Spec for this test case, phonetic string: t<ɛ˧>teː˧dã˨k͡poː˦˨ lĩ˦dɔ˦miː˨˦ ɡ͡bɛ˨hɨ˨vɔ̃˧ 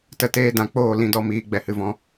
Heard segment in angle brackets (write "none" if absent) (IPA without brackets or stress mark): ə˧